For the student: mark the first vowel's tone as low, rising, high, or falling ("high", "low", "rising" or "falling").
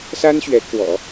high